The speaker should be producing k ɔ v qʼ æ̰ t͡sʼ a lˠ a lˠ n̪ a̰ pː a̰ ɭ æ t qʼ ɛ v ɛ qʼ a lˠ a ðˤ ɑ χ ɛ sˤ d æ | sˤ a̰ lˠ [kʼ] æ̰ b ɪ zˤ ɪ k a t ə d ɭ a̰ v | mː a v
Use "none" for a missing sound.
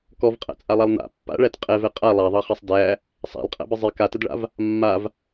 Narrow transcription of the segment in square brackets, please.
qʼ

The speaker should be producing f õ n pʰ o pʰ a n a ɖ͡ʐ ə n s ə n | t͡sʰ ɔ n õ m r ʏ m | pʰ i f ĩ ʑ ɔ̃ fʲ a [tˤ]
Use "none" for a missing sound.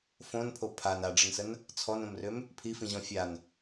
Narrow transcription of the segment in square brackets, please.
n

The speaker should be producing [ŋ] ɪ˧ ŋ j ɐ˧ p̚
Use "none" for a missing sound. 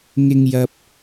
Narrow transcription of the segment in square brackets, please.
ŋ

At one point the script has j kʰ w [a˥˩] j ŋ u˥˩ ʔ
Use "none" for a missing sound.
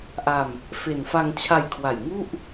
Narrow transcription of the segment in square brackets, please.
a˨˩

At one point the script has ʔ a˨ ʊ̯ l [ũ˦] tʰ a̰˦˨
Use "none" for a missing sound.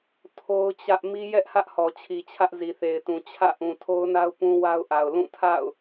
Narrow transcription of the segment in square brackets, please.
ũ˦˨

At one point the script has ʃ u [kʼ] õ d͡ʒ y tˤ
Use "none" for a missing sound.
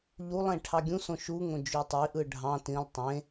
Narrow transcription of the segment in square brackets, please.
ŋ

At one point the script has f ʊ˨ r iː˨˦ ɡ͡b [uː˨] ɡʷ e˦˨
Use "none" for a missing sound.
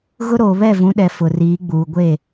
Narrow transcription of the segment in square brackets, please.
uː˨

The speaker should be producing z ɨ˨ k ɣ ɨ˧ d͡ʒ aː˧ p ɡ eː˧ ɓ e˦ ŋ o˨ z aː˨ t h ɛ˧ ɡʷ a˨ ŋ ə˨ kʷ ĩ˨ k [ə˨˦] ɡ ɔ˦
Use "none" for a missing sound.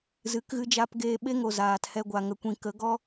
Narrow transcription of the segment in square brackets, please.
ə˨˦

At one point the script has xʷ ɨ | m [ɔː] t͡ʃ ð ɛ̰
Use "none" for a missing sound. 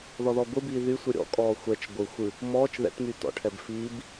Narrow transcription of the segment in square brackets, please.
ɔː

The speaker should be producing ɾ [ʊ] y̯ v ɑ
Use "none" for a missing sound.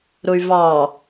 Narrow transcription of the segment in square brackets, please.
ʊ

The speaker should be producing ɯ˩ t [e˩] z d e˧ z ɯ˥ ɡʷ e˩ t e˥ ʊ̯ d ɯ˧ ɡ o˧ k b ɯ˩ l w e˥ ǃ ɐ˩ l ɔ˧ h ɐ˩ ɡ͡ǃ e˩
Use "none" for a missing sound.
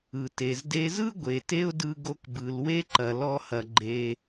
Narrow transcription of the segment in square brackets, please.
e˩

